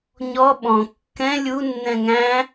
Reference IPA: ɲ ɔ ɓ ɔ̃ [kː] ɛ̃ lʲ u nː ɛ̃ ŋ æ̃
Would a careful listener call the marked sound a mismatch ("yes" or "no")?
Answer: no